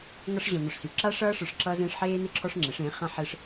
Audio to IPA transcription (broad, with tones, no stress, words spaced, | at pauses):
ŋʌ˧ʂʑɔ̃˨ n̪ɔ˨ʂsy˨ǁaː˦ʂʌː˦ ʂə˞˧ʂǁʌː˦zẽː˦ʂ ħeː˦n̪ɪ˦ǁʰɔ˦ʂ ŋ͡ǁe˨˦ʂẽː˨˦ χã˦ħɪː˦ʂ